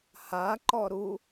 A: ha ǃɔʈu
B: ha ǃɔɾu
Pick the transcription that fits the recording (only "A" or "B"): B